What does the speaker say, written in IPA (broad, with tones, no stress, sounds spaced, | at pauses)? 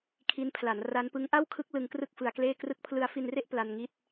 kʰ i˦˥ n pʰ l a˩˦ n r a˦˥ n p ɯ˦˥ ŋ ʔ a˥˩ w kʰ ɯ˦˥ k̚ l ɯ˧ ŋ k r ɯ˥˩ k̚ f ɯ˧ a̯ k l eː˥˩ k r ɯ˦˥ k̚ pʰ l ɯ˧ a̯ f i˧ n r e˥˩ ʔ p l a˧ n ŋ i˦˥ t̚